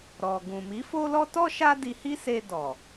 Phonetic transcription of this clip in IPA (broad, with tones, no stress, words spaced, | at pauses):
ɾɔ˨ ɡũ˨mi˨˦fo˦lɔ˦ tɔ˦ ʃa˦di˧hi˦se˧ dɔ˨